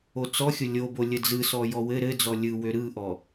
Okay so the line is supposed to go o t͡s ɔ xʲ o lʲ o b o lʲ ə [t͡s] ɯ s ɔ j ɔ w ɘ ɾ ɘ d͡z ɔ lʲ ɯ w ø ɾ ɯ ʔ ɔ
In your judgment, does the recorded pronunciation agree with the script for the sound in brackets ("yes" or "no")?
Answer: no